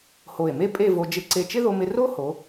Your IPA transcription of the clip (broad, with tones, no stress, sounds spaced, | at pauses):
h o˧˩ e̯ m e˥ pʼ e˥˧ v o˧ d͡ʒ ɪ˧˩ ǀ e˧˩ t͡ʃ ɪ˥ ð o˧ m ɪ˧ r o˥ h o˩˧